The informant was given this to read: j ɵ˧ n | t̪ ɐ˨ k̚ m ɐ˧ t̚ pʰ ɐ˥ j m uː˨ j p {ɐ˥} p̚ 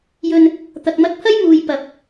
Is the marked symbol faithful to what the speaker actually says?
no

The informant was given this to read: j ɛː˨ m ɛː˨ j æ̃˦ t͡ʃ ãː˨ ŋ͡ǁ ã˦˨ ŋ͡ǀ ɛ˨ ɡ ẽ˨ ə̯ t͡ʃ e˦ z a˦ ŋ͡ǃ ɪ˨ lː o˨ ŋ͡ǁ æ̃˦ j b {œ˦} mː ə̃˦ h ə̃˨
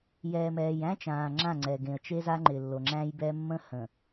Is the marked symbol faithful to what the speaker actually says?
no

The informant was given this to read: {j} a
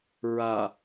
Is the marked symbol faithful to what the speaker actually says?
no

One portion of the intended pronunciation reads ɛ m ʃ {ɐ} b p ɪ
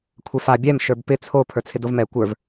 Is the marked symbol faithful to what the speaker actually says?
no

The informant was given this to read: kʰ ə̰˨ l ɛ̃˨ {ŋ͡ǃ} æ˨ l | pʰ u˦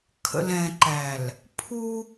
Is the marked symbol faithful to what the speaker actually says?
no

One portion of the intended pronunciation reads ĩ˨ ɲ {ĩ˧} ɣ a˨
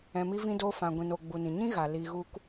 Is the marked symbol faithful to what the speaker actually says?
no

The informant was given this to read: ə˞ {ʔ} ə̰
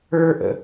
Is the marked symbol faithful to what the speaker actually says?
yes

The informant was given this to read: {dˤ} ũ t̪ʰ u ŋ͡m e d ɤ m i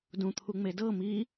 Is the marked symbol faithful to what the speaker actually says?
no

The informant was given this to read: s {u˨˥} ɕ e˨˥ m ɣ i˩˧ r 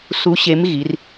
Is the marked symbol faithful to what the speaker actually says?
yes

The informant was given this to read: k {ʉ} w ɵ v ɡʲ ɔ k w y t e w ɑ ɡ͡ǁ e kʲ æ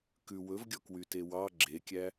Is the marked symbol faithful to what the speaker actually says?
yes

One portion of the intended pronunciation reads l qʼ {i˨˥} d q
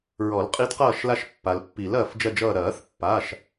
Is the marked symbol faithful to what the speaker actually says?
yes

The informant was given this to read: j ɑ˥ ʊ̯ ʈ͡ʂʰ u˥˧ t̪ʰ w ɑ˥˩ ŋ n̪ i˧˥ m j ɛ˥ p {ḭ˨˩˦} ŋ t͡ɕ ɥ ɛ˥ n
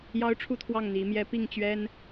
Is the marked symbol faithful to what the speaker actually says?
no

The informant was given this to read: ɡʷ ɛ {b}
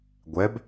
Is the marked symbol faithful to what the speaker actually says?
yes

